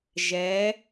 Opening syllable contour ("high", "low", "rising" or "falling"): rising